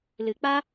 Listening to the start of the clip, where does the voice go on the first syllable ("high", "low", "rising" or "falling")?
low